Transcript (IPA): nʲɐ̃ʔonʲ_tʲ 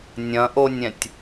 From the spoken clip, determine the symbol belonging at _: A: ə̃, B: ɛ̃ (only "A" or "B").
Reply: B